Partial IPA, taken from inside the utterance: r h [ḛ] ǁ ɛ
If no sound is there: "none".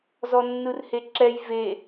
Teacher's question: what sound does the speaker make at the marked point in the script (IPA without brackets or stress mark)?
e